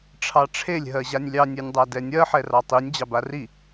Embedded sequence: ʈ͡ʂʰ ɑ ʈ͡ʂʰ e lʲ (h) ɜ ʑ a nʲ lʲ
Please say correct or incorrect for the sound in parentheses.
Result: incorrect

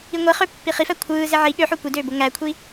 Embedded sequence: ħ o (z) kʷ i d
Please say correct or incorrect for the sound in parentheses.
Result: incorrect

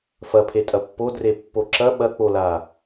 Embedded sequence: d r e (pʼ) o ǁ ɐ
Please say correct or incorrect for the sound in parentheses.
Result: incorrect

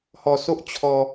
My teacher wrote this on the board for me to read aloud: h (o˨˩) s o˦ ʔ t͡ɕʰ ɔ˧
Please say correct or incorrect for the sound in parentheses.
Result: incorrect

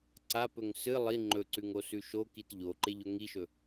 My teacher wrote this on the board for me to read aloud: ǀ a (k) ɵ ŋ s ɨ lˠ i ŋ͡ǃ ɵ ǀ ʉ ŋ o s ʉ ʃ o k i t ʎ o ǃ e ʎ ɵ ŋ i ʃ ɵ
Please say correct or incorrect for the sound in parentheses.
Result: incorrect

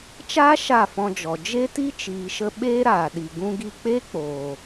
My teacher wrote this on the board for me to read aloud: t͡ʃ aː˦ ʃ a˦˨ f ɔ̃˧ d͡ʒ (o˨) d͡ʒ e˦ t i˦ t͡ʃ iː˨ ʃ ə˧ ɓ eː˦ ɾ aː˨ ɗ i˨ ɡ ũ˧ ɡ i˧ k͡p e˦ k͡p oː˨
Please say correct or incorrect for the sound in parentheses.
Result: incorrect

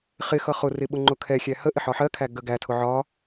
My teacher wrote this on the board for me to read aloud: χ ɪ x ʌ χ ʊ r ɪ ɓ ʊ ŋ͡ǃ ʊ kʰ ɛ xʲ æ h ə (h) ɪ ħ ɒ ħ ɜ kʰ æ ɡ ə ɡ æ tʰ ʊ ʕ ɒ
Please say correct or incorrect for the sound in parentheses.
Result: incorrect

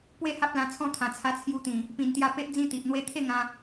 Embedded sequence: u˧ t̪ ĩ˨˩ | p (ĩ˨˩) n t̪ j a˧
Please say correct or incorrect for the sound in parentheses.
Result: correct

